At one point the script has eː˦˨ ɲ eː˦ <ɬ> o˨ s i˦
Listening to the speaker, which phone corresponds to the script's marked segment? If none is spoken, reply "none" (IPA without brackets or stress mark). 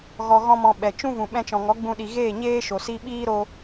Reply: ʃ